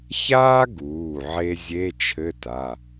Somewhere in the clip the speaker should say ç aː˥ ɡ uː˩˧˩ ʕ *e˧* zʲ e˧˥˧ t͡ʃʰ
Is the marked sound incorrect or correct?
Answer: correct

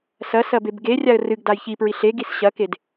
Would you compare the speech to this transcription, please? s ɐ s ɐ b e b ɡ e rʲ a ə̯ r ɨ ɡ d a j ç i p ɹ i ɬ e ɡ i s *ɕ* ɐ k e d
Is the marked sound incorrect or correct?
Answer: correct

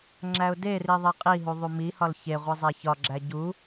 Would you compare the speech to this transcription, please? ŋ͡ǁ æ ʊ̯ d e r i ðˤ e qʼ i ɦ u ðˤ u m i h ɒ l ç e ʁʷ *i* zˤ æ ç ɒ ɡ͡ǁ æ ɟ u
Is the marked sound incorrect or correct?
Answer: correct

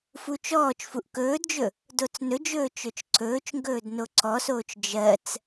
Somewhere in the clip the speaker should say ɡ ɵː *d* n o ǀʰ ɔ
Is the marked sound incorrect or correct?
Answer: correct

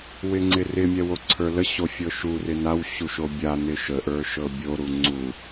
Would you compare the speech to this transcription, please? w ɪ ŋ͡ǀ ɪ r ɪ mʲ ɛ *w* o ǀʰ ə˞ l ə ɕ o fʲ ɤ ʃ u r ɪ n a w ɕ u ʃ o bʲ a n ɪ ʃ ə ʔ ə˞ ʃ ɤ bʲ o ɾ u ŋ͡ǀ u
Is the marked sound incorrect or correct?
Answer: correct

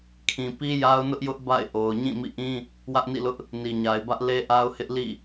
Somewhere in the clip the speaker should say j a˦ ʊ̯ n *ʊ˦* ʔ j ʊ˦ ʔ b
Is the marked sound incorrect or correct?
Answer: correct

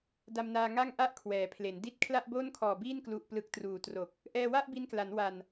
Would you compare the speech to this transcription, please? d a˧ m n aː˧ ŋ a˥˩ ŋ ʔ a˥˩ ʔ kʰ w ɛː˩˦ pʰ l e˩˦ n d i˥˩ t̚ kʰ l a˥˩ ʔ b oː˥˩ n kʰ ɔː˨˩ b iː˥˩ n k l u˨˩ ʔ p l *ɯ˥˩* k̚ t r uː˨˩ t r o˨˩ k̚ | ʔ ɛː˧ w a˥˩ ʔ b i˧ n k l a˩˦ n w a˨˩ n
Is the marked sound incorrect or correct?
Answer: incorrect: ɯ˨˩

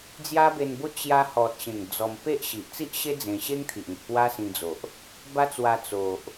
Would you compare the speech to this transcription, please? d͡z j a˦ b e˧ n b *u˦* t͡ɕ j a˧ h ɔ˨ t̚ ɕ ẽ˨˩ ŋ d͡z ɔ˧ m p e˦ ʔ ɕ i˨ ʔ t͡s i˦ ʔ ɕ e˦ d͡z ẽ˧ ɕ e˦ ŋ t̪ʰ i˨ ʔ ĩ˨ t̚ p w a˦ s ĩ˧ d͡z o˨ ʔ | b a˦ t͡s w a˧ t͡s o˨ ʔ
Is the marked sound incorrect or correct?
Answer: incorrect: o˦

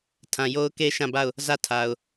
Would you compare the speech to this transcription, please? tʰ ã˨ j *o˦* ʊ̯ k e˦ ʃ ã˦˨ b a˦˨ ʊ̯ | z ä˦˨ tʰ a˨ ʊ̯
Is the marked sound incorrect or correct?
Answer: correct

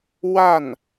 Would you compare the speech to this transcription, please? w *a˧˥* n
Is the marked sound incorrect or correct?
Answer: incorrect: a˥˩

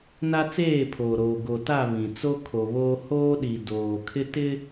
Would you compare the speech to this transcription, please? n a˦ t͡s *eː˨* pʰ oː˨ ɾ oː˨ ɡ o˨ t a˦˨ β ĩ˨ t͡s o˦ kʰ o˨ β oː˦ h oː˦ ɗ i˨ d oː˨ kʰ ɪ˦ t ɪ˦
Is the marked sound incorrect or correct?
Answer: incorrect: eː˦˨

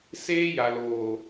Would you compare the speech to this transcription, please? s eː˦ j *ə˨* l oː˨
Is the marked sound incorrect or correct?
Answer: incorrect: a˨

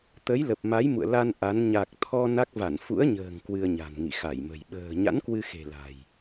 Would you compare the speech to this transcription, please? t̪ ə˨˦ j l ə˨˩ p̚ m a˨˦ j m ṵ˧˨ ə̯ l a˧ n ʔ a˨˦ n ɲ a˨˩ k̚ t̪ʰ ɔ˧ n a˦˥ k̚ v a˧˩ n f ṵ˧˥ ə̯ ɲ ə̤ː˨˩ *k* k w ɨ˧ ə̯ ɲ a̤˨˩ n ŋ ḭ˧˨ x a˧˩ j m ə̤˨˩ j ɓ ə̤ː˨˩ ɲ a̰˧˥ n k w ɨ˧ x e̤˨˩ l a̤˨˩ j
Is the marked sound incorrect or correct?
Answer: incorrect: ŋ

